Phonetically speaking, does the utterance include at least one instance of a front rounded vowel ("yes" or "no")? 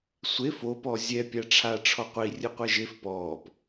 no